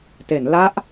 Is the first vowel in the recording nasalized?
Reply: no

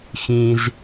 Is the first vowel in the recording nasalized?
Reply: yes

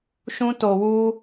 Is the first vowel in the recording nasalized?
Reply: yes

